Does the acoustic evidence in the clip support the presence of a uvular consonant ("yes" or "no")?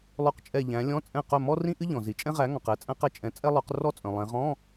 yes